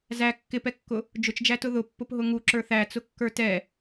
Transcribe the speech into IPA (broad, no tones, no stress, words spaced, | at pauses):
zæ kːɪpɛkːʊ | d͡ʒʊt͡ʃd͡ʒætʊ ðʊpːʊpɦʊ ŋuǁə˞ θæt͡sʊkːə˞ tɛ